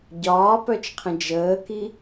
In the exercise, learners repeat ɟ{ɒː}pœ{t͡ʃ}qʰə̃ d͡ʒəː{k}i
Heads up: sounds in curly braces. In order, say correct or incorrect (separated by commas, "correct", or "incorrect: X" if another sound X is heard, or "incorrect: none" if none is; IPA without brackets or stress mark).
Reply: correct, correct, correct